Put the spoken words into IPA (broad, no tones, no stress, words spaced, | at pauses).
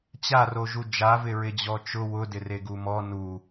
t͡ɕaroʒu d͡ʒavɪɹɪd͡ʑɔ t͡ʃʊ wʊdɪreɡu mɔ nu